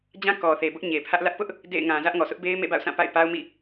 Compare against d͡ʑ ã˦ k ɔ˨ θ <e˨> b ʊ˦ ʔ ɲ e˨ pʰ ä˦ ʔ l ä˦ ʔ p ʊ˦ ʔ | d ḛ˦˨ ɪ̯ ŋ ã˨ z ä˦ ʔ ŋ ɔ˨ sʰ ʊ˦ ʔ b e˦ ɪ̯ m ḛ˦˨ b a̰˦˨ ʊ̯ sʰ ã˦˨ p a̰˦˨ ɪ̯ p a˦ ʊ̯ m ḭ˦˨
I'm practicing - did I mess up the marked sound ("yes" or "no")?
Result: no